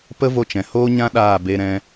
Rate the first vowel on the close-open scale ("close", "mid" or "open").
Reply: mid